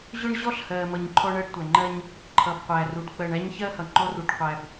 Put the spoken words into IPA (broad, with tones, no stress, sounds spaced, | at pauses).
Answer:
ʑ ʊ˦ ɳ ʑ ɔ˦ ɬ h ɜ˨ m ʌ˨ ɲ ǃʰ ɔ˦ ɳ ɜ˦ ɖ tʷ æ˨ ŋ͡ǃ ɜ˦ ɲ | ǃʰ ʌ˨ b qʷ æ˨ r u˨ ɖ k͡p ɜ˨ ɳ æ˦ ɲ ç ɜ˦ h ʌ˨ ŋ͡ǃ ɔ˦ r u˨ ɖ qʷ æ˨ b